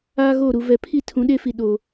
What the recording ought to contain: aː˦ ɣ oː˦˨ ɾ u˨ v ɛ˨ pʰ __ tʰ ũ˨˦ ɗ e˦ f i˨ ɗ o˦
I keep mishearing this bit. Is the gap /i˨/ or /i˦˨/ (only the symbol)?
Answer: i˦˨